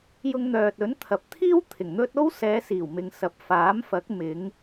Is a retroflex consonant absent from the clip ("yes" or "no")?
yes